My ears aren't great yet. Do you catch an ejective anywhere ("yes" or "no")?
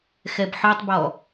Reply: no